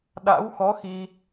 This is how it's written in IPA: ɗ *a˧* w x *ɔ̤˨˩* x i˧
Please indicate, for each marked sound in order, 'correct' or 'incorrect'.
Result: incorrect: a̰˧˥, incorrect: ɔ˨˦

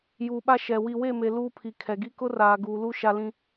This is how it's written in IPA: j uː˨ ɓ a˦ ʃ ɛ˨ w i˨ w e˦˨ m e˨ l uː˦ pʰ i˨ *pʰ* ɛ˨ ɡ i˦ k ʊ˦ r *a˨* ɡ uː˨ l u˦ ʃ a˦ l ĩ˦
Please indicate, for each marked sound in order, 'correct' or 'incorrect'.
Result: incorrect: kʰ, incorrect: aː˨

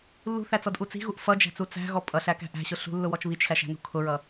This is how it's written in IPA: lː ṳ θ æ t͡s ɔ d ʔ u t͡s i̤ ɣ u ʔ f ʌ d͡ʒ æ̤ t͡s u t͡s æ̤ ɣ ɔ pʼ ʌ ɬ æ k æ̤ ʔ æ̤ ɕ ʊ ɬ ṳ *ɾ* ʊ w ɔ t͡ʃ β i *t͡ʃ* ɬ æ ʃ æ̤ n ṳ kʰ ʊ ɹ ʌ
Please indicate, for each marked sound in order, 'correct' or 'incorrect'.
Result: incorrect: lː, correct

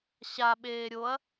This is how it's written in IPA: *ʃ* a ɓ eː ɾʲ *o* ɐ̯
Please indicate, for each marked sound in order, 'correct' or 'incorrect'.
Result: incorrect: ɕ, correct

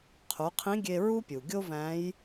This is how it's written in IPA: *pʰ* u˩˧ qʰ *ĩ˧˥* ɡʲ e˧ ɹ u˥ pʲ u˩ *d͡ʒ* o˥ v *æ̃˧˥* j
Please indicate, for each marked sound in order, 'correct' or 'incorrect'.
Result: incorrect: qʰ, correct, incorrect: ɡʲ, correct

